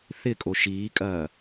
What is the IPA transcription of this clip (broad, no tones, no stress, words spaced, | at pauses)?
θɪkʼo ʃiːkʼɐː